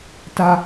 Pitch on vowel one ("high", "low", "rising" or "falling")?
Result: low